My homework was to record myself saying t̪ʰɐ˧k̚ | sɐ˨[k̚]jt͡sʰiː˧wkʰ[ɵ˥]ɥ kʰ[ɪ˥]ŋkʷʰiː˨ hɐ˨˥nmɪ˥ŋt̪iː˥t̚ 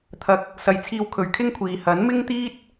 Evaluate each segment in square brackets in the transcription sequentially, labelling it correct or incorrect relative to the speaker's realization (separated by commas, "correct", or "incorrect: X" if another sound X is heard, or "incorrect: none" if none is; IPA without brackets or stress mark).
incorrect: none, incorrect: ɵ˨˧, correct